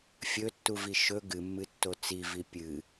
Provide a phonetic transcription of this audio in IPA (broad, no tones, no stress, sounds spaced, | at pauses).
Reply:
fʲ ɵ tː u v i ʃ ɵ ɡ ɨ mː ɨ tː o t͡s i v i pʲ ɨ